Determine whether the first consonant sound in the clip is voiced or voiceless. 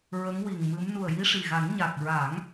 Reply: voiced